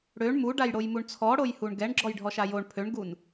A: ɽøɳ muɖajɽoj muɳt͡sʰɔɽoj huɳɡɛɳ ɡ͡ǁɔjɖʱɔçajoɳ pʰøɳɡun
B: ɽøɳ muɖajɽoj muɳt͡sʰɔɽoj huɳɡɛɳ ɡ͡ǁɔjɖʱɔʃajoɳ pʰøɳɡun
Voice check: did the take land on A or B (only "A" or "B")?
B